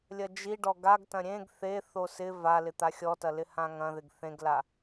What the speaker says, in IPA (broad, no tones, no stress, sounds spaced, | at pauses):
lʲ ɐ d͡ʒ i ɖ ɔ ɡ a ɡ t ɐ̃ ɾʲ ẽ ɡ θ e θ o s ɪ v a l ɪ t̪ a xʲ ɔ t ɐ l ɪ h ã ŋ ɐ̃ ð ɪ ɡ θ ẽ ɡ l a